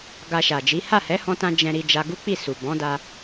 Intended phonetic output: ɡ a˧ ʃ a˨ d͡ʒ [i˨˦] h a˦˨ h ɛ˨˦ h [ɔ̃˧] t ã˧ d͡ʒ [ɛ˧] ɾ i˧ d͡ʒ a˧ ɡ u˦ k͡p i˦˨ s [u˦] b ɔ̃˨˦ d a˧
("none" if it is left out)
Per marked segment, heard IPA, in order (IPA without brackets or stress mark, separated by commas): i˨˦, ɔ̃˧, ɛ̃˧, u˨